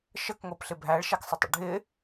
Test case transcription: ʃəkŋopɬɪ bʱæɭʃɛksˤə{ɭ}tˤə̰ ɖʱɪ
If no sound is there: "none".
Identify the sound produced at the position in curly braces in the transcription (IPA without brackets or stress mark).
none